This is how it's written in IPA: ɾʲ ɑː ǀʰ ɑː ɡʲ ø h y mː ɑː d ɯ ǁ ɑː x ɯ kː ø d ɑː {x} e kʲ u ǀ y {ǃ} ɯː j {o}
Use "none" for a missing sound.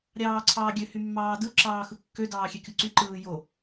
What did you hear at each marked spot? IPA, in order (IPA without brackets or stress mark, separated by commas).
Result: xʲ, ǃ, o